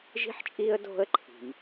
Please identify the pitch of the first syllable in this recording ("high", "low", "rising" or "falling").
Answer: high